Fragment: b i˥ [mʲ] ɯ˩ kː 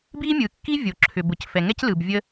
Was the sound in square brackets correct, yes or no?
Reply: yes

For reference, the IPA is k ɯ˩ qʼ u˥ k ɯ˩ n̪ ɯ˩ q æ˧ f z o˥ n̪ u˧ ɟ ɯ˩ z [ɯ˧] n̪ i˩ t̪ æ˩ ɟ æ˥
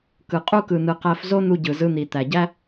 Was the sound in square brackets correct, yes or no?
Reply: yes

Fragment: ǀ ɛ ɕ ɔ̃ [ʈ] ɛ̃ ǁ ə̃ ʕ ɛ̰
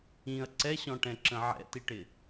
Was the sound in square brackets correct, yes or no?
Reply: yes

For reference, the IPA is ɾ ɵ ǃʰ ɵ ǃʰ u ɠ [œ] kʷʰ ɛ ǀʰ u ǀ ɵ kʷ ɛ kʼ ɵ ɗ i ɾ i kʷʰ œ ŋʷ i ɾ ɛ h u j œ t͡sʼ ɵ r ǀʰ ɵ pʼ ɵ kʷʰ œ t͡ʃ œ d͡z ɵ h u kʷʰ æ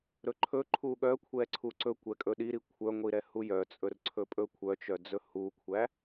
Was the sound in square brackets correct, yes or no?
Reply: yes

